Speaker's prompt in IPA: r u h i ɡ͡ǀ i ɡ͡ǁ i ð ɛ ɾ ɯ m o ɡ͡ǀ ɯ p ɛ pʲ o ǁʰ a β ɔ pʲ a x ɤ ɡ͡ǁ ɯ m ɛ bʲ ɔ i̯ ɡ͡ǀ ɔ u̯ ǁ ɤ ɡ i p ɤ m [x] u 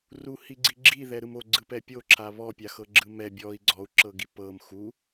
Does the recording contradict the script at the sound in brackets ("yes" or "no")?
no